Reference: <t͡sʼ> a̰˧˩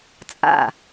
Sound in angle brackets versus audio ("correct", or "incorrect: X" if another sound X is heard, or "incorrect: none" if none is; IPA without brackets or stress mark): correct